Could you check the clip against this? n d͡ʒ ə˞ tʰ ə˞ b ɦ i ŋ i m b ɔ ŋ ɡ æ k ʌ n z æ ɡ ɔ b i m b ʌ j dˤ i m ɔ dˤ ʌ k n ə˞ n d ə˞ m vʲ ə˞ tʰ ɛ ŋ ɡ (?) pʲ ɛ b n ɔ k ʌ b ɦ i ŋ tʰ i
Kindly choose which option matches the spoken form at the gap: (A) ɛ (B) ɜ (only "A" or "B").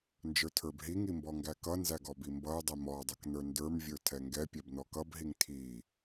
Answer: A